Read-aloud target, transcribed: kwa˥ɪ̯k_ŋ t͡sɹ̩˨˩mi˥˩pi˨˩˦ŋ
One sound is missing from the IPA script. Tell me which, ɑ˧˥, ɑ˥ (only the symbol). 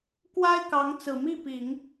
ɑ˧˥